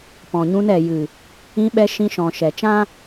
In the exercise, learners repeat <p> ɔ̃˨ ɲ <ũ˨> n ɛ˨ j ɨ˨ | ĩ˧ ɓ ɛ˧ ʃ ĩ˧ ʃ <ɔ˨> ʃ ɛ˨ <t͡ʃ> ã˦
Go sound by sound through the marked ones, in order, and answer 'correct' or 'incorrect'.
correct, incorrect: ũ˧, incorrect: ɔ̃˨, correct

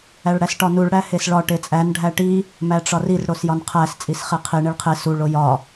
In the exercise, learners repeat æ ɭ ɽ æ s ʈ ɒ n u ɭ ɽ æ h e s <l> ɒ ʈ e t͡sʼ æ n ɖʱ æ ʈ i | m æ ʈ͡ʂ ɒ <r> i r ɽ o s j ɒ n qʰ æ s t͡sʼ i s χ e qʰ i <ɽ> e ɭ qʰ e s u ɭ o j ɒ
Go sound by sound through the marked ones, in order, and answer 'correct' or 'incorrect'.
incorrect: ɭ, correct, incorrect: ɳ

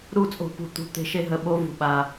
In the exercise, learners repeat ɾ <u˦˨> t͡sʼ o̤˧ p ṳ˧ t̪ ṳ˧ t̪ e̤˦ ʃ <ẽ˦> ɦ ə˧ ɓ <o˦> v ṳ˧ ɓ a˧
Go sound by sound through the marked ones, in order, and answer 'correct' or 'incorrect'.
correct, incorrect: e˦, correct

